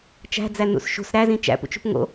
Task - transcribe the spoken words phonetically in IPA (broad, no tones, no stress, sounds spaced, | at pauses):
t͡ʃ æ̤ d͡z æ n ṵ s ʃ ṳ s ɾ æ z ĩ t͡ʃ æ̰ p ṵ t͡ʃ ṳ p ŋ o̰